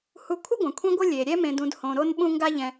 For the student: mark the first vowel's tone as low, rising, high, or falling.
low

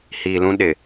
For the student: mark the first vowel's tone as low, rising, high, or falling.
low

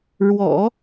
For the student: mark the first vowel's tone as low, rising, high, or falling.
low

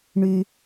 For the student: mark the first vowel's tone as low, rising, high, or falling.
low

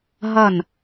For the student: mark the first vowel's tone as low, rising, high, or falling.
falling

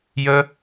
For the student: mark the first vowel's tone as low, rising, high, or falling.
high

